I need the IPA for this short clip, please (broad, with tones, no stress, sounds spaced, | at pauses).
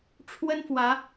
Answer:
ʈ͡ʂʰ w ə˦ n f w ä˨˦